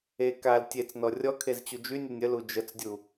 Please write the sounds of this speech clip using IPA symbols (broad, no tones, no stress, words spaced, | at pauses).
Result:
e kal tʲet͡snɔ rʲɔkʰez t͡ɕud͡ʒynʲenʲ əl ud͡ʒət͡sdʲu